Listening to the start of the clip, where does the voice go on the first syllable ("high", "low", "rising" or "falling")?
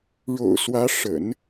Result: low